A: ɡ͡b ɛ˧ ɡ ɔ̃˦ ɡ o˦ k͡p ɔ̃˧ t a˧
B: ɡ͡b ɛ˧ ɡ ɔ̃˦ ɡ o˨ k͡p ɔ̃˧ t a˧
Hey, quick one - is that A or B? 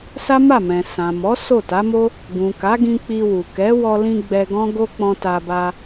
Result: A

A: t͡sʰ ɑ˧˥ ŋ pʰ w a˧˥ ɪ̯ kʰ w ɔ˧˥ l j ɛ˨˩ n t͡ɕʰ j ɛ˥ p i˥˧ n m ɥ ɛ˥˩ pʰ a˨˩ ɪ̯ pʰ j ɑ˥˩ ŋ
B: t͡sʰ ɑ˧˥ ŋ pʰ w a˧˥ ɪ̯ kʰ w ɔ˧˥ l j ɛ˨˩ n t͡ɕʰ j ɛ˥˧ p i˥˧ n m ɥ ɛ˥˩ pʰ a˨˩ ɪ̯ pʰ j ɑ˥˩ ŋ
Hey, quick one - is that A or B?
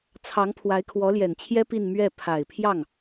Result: A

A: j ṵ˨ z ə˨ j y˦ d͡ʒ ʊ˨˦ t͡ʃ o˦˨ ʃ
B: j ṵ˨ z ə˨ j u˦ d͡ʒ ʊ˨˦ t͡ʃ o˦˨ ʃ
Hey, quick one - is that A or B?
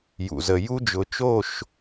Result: B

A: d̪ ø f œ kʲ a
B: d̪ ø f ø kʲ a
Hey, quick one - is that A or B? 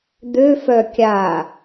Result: A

